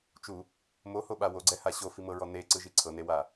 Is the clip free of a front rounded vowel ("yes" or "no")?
yes